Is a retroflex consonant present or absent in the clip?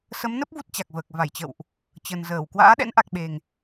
absent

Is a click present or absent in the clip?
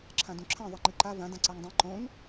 present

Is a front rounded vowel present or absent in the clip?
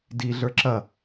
absent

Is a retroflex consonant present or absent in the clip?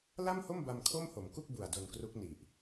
absent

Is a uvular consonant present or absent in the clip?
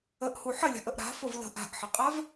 present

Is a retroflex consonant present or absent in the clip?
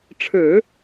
present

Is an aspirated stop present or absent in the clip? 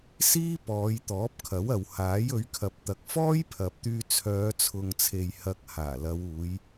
present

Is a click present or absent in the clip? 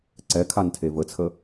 present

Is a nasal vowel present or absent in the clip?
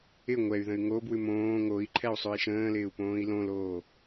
present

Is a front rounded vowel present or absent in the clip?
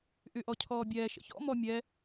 present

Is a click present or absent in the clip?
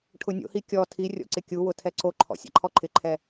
present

